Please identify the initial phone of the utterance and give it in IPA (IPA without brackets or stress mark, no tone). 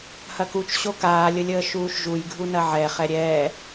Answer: h